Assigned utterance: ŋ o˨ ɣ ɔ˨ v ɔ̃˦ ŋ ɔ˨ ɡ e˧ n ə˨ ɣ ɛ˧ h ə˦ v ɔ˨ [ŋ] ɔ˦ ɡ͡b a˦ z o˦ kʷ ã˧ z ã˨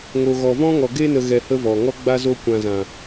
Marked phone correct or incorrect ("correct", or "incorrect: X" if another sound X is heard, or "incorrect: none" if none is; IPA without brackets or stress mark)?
correct